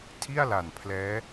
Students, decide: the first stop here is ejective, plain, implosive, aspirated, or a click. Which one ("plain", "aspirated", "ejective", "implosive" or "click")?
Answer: aspirated